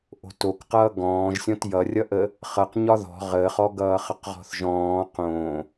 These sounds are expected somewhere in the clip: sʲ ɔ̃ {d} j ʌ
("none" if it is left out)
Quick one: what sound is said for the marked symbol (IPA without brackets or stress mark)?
t